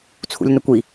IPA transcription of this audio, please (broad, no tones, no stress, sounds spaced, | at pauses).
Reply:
t͡sʰ ṵ lʲ n ə kʷ i